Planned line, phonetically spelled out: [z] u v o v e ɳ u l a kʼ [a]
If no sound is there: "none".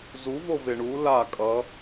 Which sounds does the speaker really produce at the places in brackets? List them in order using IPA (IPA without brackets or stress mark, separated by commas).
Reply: z, ʌ